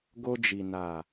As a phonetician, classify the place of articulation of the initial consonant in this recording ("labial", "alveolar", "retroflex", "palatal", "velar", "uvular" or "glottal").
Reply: velar